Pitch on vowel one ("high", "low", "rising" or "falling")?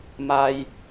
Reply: low